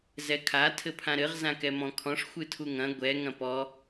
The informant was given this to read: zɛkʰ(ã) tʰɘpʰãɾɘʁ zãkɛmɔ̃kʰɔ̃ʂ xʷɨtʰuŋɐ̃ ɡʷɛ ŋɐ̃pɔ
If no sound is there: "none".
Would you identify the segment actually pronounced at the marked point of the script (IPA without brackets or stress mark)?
a